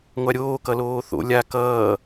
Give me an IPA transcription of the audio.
ŋʷ a ɾʲ oː k ʌ l oː θ o̰ lʲ a k ʌː

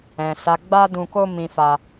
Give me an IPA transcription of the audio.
ɛ̃˨ s a˨˦ ɡ͡b a˦ d ũ˧ k o˦ m ĩ˧ f a˧

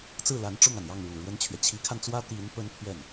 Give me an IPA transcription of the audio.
t͡s ɹ̩˥˩ l a˧˥ n ʈ͡ʂ ʊ˥˩ ŋ a˩ n j ɑ˥˩ ŋ ɻ u˨˩ ɻ w ə˥ n t͡ɕʰ ɥ ɛ˨ t͡ɕʰ i˧˥ kʰ a˧ n t͡s w ä˥ t̪ i˧˥ n p ə˥ n pʰ ɥ ɛ˥˩ n

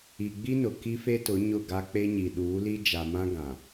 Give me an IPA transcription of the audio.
i˨ ɡ͡b i˦ n ʊ˨ k i˦ f e˦ t ʊ˨˦ ɲ ʊ˦˨ ɡ a˦ k͡p e˦ ɲ i˨ ɗ uː˨˦ l i˦ d͡ʒ a˨ m ã˦ ɡ ã˨

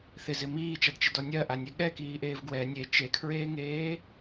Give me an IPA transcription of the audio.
θ ɪ z ɪ m iː t͡ʃ a d t͡ʃ ɪ d ɔ nʲ ɜ ʔ a nʲ ɛ ɠ ɛ k iː ʔ eː v ɡ w ɛ nʲ e t͡ʃ e kʰ ɹ eː ŋ eː

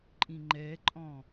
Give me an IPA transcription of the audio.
ǃʼ ĩ ŋ͡ǃ ɛ ǃʼ ɔ̃

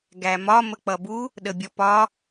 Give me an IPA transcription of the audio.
ɡ æ m ɒ m ə k͡p ʌ b u | ɗ ə bʲ ɔ p ɒ

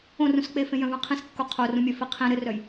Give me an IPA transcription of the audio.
õ r ũ s k͡p e f ẽ j œ̃ v œ̃ qʰ ĩ s kː o qʰ o r ũ mʲ œ f i qʰ ĩ ɾ ɘ r œ j

